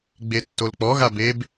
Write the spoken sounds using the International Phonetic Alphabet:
ɡ͡b e tː o l k͡p ɔ ɣ a b e b

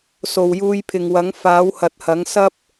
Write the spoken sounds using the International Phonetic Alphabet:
s o˨ w j uː˧ j pʰ ɪ˨ ŋ w ɐ˨˥ ŋ f aː˨˥ w h ɐ˨˥ t̚ h ɐ˨˥ ŋ s ɐ˥ p̚

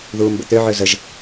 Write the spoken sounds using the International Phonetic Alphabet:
ð uː m b ə̰ t̪ ø ʕ ø z ə ʒ

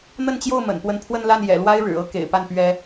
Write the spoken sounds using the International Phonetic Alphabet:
n̪ ə˥˧ n t͡ɕ j o˥˩ ʊ̯ m ə̰˨˩ n p w ə˥ n pʰ w ə˥˧ n l a˥˩ n j ɛ̰˨˩ l w a˥ ɪ̯ ɻ ɻ̩˨˩ ɤ˥ k ḛ˨˩ ɪ̯ p a˥˩ n p ɥ ɛ˥

